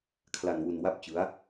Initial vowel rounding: unrounded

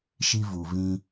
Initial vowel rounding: unrounded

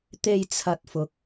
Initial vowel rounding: unrounded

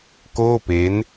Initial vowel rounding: rounded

